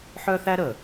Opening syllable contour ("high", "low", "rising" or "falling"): high